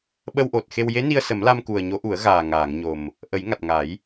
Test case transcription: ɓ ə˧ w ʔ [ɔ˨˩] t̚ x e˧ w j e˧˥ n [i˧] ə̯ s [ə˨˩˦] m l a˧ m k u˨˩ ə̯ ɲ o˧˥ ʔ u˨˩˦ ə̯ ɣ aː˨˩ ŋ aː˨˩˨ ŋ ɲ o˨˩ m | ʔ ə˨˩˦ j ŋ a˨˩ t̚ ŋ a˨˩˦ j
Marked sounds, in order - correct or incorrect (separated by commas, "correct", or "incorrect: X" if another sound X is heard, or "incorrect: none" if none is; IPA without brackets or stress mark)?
incorrect: o˨˩, correct, correct